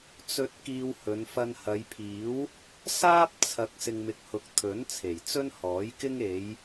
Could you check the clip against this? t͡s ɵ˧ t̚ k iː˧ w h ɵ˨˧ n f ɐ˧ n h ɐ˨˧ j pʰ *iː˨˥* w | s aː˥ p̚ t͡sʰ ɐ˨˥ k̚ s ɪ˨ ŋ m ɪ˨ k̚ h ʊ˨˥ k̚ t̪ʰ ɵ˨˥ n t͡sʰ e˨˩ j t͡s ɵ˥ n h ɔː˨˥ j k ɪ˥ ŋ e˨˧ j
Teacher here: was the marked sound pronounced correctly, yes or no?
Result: yes